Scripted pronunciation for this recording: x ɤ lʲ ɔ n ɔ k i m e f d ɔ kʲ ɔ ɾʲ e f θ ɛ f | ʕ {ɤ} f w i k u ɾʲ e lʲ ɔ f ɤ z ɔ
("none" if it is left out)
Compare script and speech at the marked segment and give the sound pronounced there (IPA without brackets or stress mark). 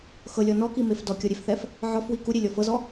ɔ